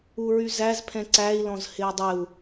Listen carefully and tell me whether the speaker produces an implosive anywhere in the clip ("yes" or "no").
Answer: no